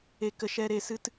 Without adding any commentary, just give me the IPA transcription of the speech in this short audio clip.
e˧ k ə˧ ʃ ɛ˦ ɾ e˧ s ɨ˦ t

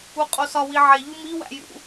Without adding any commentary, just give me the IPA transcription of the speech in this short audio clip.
u qʼ o s ɒ w i ʕ e ʎ u m i w æ̰ j ṵ

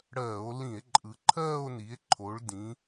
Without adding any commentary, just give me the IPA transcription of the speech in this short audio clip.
ɽ ɜː˧˩˧ o̯ l ĩ˧˩˧ e̯ ǃʼ ɯ˩˧ ǃʰ ɜː˥˧ o̯ n i˩˧ e̯ ǃʰ o˩˧ ɭ d ĩ˩˧

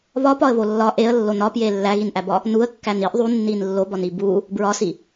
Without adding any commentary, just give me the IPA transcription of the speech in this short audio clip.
β ɒ p ɒ ə̯ β o lː ɒ ʔ e ə̯ lː o n ɒ p j e lː æ ɣ i n ʔ æ b ɒ | n u ə̯ kː æ n i ʔ ðˤ u nː i n lː o b ɒ n i b u | b ɹ ɒ s i

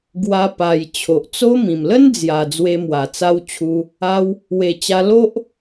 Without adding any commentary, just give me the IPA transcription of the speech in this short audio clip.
ɡ w a˧ p a˨˩ j t͡ɕʰ o˨ ʔ t͡s o˦ m ĩ˨˩ m l ə˦ n d͡z j a˨˩ d͡z w e˧ m w a˨˩ t͡s a˧ w t͡ɕʰ u˧ | a˧ w | w e˨˩ t͡ɕ a˧ l o˦ ʔ

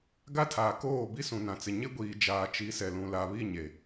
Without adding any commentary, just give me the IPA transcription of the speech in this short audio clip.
ɡ a˦ tʰ aː˨ k oː˦˨ b i˦ s ũ˨ n ã˨ t͡s ɪ˨ ɲ ɪ˦ ɡʷ iː˨ d͡ʒ aː˨ t͡ʃ i˨˦ s ɛ˨ l ũ˨ l a˨ β i˦˨ ɲ e˨

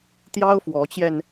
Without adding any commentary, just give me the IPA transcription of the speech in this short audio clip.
t̪ j ɑ˥ ʊ̯ f w ɔ˧˥ t͡ɕ j ɛ˧ n

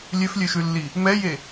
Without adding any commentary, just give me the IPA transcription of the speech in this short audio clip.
lʲ ø f lʲ ø ʃ ʉ lː i | m ɛ j e

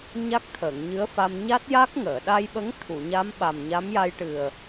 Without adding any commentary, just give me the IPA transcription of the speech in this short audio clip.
ɲ a˦˥ k̚ t̪ʰ əː˨˩˨ ŋ ɲ ɨ˧˥ ə̯ f a˧ m ɲ a˦˥ t̚ j a˦˥ k̚ ŋ əː˨˩˨ ɗ a˧ j ɓ ə˧˥ ŋ t̪ʰ u˨˩˨ ɲ a˧˥ m ɓ a˨˩ m ɲ a˧˥ m j a˧ j ʈ ɨ˨˩ ə̯

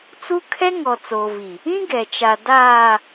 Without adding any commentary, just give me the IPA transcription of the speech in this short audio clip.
t͡s u˦ kʰ ɛ˦ ŋ ɔ˨ t͡s oː˨ v i˨ | ĩ˦ ɡ ɛ˨ t͡ʃ a˨ d aː˨

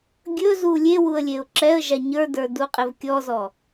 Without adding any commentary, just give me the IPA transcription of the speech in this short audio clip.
ɡʲ ɵ z u lʲ e w u ə̯ lʲ e ʊ̯ ǁ ɛ ə̯ ʒ a ɲ ə˞ d ə˞ d u qʼ e v kʲ ɔ z ɔ

